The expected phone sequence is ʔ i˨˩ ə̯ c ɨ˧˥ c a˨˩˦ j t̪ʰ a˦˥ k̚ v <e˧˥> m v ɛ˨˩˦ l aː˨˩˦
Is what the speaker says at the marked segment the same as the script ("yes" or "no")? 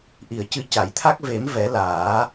no